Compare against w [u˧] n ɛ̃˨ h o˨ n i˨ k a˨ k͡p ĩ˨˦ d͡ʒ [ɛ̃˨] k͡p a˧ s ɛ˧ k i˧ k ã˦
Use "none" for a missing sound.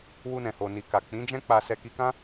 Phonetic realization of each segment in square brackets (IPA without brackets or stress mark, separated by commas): u˧, ɛ̃˦